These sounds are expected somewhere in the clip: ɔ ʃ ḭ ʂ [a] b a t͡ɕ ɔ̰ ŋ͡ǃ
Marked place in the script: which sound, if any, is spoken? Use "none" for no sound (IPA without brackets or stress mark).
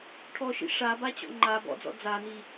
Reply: a